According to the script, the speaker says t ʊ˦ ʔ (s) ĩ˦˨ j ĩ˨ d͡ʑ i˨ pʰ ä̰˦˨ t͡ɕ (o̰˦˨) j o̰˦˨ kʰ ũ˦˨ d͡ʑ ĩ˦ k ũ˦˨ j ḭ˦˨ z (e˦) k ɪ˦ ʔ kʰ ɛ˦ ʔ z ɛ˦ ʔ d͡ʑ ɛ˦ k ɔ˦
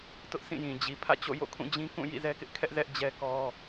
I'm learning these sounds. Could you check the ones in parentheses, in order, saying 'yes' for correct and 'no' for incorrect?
yes, yes, no

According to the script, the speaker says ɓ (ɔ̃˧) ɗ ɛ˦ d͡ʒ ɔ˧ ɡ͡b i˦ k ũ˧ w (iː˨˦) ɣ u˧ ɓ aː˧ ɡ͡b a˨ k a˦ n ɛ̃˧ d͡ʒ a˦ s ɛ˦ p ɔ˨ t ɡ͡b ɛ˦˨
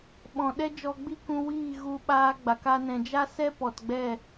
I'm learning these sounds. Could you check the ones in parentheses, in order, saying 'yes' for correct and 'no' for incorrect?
no, no

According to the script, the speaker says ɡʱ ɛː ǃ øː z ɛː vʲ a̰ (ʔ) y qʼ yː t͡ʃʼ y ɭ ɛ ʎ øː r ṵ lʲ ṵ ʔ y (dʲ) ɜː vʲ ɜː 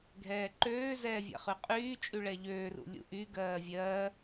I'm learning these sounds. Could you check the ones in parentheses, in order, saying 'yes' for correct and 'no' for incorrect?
no, no

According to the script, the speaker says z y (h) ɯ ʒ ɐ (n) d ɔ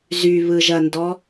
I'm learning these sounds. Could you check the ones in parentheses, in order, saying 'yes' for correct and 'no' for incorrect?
no, yes

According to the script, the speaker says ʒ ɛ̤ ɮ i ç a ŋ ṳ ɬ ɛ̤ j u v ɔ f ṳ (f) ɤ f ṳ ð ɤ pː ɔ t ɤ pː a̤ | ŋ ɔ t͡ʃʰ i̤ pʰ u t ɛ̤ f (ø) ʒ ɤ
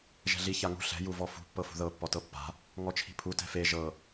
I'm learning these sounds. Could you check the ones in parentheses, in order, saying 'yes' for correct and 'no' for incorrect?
no, no

